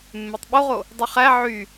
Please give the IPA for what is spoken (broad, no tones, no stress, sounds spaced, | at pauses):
mː e tˤ ɓ o ʁ o | dˤ y χ æ ʕ y